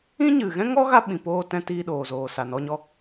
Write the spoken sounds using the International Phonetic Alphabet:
ĩ˦ ɲ ɨ˨ ɣ ɛ̃˦ ŋ ɔ˦ ɣ a˧ ɓ ĩ˨ p oː˧ t ɛ̃˧ t iː˧ ɗ oː˨ z oː˨ s a˨ n ɔ˧ ɲ ɔ˧

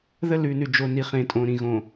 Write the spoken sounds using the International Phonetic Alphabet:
ð ə˦˨ l ʉ˨ n ʉ˨ d͡ʒ o˨ n i˨ χ ẽ˨ tʼ õ˨ ɾ ĩ˨ ɣ õ˨

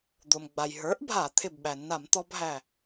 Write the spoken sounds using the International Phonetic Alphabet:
d̪ o˩ m ɡ͡b a˩ j ɦ ə˞˩˥ ʔ bʱ a˧˩˧ t̪ʰ ɪ˧˩ b ɓ æ˩ nː a˧˩˧ m t̪ ɔ˧ b ɦ æ˧˩

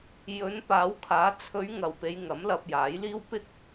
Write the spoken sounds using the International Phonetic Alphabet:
j ɵ˨˧ n p aː˨˧ w kʰ aː˨˧ t͡sʰ ɵ˨˧ ɥ ŋ ɐ˨ w p e˨˧ j ŋ ɐ˨˥ m l ɐ˧ p̚ j aː˨˥ j l iː˥ w p ɪ˥ k̚

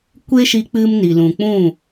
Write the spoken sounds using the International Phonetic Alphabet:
kʷ e˦ ʃ i˧ k͡p ɨ˦ m n i˨ l ũ˨ k͡p ũ˦˨

